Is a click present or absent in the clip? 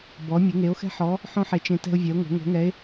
absent